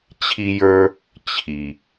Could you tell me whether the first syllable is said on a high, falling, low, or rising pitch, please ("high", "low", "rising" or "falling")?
high